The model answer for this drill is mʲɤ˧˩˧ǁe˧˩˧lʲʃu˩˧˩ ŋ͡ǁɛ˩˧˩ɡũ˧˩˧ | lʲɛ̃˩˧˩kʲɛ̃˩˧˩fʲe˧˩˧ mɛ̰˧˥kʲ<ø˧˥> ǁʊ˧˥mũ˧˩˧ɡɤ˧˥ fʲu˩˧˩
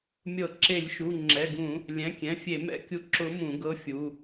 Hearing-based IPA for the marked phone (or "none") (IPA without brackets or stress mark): u˧˥